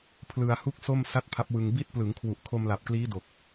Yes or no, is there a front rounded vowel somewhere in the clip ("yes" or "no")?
no